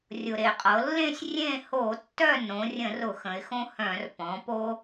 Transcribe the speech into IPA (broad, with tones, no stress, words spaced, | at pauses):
rʲʊ˩ ɾe˩qʼɤ˩˧lːẽ˥˨sʲ rʲẽ˥˨ ho˧˩˧ tːœ˥˨nõ˩˧rʲə̃˧˩˧r ʊ˧˩˧xə̃˩˧ɪ̯xõ˦hœ̃˧˩˧r pɔ̃˩˧po˦